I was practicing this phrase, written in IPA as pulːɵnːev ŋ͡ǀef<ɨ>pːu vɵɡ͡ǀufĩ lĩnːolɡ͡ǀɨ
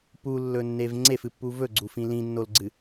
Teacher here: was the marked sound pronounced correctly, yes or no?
yes